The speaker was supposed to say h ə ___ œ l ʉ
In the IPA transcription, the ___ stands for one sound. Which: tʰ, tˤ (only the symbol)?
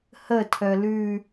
tʰ